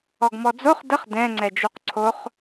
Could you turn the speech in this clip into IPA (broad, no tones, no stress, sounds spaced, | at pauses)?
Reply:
ɔ ɡ m ɔ d͡z o χ d ə χ d ɛ̃ ŋ͡ǀ ɛ d͡ʒ u q ǀʰ o χ